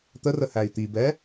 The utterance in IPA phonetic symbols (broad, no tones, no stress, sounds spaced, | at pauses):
t̪ ə r ə h æ i̯ t̪ i b ɛ